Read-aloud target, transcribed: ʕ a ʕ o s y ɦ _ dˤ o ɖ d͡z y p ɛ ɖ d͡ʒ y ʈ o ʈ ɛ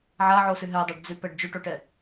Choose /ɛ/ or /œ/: ɛ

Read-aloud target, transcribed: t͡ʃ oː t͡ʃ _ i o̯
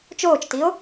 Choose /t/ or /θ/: t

